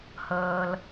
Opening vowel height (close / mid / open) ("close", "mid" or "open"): mid